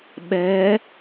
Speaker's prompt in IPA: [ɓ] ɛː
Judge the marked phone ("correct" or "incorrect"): correct